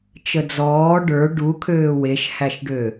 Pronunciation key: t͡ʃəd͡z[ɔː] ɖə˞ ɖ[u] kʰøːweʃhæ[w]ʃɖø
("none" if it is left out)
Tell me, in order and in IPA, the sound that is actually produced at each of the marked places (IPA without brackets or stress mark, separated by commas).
ɔː, u, none